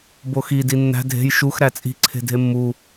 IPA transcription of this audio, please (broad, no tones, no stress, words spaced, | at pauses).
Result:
boxi dinːæ̤ dʱe̤j ʃux ɾæt͡sʼi̤ ǀʰe̤dʱemːu